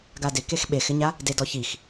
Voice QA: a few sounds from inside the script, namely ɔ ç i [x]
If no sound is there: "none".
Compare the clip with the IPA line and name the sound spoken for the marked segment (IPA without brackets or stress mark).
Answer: x